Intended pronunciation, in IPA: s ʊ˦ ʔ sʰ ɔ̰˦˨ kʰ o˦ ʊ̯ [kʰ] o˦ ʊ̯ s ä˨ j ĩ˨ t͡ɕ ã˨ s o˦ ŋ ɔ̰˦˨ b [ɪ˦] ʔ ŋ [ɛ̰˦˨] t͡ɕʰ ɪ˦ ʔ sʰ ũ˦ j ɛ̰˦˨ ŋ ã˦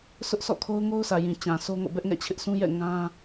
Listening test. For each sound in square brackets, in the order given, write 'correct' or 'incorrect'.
incorrect: ŋ, incorrect: ɛ˦, correct

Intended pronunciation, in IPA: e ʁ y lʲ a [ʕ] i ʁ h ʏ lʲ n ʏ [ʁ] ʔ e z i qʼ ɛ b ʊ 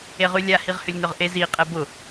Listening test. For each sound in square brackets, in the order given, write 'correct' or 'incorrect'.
incorrect: h, correct

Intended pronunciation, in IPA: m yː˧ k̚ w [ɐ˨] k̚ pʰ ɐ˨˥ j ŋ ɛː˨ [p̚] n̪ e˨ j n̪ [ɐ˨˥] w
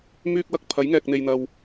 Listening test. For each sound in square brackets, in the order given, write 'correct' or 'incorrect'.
incorrect: ɐ˧, incorrect: k̚, incorrect: ɐ˨

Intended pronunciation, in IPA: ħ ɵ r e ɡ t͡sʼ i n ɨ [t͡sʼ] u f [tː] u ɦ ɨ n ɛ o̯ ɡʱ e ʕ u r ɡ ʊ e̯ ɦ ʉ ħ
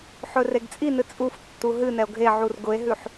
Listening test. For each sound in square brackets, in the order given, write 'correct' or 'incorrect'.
correct, correct

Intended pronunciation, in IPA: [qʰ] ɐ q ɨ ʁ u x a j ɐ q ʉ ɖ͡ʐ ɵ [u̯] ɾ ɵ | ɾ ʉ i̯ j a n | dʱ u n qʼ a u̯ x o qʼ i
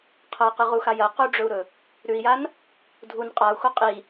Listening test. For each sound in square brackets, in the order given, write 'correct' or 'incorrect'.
correct, correct

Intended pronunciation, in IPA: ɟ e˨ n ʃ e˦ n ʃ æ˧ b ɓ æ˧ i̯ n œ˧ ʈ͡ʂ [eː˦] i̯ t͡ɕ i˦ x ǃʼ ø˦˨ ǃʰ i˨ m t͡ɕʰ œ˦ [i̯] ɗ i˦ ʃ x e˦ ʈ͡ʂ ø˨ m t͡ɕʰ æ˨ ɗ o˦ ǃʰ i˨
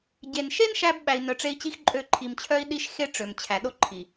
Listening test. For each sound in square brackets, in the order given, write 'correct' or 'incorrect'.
incorrect: e˦, correct

